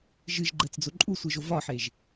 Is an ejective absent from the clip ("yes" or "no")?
no